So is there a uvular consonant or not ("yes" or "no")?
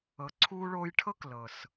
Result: no